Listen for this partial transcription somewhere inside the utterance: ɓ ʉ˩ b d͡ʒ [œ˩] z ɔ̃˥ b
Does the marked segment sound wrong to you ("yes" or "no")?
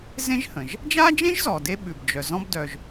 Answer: no